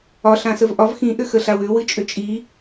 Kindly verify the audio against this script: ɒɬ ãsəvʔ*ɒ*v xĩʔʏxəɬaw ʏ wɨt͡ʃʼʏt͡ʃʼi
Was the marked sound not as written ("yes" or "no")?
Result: no